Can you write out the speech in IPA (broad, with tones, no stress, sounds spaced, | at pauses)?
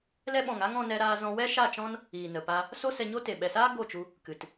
l ɛ˧ ɓ ɔ̃˨ ŋ a˦ ŋ ɔ̃˧ n ɛ˧ ɾ aː˧ z ɔ̃˧ w ɛ˦ ʃ a˦˨ t͡ʃ ɔ̃˦ n | iː˨ n ə˨ p a˧ | s o˦ s ɛ˧ ɲ o˦ t e˨ ɓ ɛ˨ s aː˦ ɡ o˦˨ t͡ʃ u˧ | k ɨ˨ t